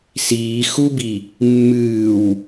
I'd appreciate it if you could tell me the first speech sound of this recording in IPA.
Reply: s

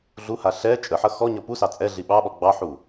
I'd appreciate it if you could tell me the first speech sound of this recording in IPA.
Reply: ɮ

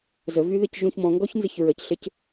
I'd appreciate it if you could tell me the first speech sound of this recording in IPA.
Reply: z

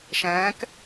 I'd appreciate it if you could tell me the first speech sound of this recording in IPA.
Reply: ʃ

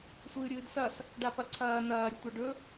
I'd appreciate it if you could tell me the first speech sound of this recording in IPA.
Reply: sʷ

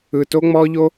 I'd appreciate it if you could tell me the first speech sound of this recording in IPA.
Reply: ɯ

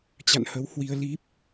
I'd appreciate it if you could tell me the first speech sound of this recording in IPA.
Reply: t͡ɕ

